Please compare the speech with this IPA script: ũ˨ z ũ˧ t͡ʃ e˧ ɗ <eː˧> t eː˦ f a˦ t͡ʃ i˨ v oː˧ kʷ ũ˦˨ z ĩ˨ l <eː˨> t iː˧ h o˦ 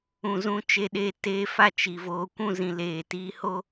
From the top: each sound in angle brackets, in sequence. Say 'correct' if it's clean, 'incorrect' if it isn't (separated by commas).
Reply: correct, correct